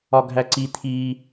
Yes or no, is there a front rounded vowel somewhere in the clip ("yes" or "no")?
no